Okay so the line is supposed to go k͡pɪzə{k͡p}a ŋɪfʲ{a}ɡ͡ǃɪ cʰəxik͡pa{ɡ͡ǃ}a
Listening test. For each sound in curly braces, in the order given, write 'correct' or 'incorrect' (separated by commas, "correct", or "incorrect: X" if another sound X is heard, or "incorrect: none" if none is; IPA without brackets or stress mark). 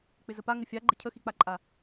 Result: incorrect: p, correct, incorrect: ǃʼ